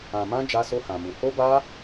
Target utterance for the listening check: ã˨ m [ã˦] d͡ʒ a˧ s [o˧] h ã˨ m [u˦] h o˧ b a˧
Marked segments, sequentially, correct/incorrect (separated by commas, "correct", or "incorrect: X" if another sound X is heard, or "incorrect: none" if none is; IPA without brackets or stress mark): incorrect: ã˧, correct, incorrect: u˨